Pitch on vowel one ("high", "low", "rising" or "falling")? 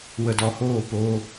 low